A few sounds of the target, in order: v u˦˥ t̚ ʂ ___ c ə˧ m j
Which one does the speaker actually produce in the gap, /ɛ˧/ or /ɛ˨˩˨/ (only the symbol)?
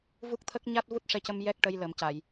ɛ˧